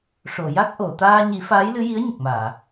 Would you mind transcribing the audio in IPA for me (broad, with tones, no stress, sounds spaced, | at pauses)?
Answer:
ʂ o˨˩˨ j a˦˥ k̚ ʔ o˨˩˨ t̪ aː˧ ɲ i˨˩˦ f aː˧˥ j l ɨ˧˥ j i˧˥ ə̯ ɲ ə˨˩ k̚ m aː˨˩˨